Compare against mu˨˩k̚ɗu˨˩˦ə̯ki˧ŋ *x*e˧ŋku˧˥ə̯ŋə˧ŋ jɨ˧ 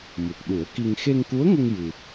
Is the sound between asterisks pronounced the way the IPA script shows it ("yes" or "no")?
yes